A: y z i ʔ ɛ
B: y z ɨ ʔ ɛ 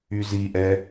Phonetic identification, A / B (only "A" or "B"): A